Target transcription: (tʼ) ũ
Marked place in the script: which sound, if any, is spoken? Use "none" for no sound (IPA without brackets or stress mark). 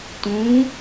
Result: t